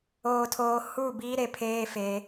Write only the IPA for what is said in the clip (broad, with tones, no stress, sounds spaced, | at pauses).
oː˨ tʰ oː˨ h u˦˨ b iː˦ ɾ e˨ pʰ eː˦ f e˨˦